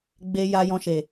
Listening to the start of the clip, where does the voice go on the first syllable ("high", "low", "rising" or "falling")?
high